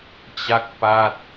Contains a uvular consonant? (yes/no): no